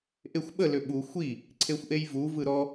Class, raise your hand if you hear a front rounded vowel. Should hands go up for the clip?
yes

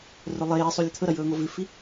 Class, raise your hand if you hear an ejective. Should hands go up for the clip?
no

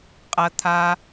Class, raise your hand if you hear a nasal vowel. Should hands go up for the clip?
no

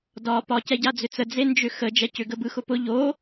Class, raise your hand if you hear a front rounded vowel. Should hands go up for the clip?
yes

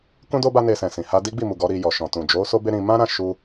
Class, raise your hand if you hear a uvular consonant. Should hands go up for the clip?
no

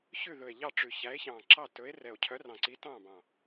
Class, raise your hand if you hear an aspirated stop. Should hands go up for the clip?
yes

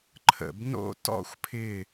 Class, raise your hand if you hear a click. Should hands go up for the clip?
yes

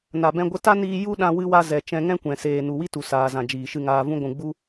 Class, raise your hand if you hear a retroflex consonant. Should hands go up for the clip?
no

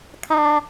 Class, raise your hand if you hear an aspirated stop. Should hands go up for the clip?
yes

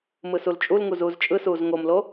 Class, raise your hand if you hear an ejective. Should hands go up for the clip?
yes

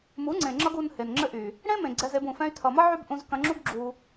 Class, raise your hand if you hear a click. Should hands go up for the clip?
yes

